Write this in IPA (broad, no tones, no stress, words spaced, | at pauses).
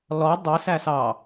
lɔ dˤi sæsɑ